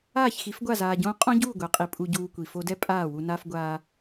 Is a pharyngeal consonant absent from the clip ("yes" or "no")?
yes